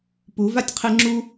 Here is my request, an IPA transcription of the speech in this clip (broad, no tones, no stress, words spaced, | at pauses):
puvatʲqʰɯ ŋ͡ǁu